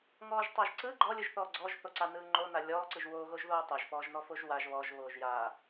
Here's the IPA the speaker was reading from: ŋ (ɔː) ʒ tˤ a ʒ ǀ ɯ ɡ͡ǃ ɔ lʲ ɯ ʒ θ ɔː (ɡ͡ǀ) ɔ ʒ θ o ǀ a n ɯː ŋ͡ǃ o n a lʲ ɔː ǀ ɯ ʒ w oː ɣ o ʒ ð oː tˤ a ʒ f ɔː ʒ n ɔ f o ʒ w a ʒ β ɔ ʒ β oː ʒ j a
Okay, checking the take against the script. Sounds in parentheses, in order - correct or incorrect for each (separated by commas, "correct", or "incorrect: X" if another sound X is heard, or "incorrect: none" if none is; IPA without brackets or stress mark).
correct, correct